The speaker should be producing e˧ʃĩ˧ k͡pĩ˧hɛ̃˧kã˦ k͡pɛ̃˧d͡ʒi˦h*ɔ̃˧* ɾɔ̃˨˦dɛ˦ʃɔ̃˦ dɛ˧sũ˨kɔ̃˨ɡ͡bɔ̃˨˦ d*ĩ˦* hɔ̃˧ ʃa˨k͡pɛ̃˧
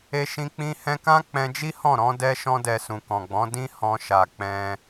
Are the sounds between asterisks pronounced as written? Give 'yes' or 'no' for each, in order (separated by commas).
no, yes